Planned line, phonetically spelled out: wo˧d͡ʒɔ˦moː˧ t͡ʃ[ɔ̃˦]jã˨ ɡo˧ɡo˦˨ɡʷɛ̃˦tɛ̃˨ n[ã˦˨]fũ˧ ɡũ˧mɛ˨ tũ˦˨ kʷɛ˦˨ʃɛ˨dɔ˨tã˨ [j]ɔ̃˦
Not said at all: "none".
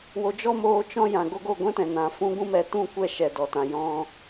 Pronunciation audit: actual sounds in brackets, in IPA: ɔ̃˧, ã˨, j

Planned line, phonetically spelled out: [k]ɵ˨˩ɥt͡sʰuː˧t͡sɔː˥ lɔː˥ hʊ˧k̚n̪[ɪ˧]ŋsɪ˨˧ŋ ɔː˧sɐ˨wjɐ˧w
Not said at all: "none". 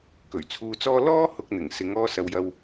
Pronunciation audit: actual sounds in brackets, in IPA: k, ɪ˨˩

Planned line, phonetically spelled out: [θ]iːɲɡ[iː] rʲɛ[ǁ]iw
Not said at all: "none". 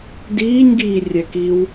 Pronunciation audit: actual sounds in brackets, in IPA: d, iː, k

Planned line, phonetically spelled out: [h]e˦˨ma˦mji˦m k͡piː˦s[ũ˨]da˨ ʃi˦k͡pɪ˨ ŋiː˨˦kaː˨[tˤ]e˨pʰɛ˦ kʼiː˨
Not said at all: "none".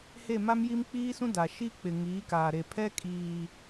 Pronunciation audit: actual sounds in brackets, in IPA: h, ũ˦, ɾ

